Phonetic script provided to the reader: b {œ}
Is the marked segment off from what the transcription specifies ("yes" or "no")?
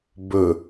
yes